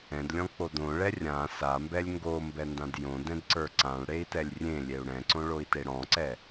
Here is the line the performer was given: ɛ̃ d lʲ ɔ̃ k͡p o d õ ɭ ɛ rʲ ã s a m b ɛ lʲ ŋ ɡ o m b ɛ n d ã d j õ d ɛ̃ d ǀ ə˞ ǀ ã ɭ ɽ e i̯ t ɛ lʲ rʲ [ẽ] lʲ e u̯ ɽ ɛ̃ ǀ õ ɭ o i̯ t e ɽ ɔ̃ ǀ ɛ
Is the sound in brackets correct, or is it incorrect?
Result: correct